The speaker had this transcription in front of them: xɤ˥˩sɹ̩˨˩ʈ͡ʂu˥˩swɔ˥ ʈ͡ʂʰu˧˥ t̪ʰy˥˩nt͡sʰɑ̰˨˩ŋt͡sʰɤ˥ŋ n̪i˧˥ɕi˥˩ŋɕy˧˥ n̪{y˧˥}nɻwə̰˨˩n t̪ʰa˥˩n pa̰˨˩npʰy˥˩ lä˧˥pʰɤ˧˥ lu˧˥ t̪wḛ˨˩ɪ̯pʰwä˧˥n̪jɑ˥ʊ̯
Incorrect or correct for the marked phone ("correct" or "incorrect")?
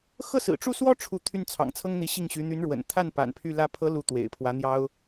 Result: correct